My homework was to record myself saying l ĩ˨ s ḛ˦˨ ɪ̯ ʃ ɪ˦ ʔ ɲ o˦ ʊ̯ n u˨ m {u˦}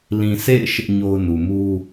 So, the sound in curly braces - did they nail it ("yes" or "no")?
yes